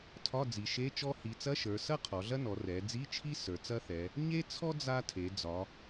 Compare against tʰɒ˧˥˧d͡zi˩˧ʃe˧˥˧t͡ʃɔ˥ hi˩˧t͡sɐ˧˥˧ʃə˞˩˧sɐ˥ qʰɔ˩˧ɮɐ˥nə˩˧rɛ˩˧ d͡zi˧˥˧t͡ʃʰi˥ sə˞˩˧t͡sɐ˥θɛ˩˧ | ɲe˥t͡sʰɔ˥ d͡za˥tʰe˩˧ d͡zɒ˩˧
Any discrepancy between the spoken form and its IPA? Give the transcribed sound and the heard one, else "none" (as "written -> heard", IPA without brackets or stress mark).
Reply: ə˩˧ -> ɔ˩˧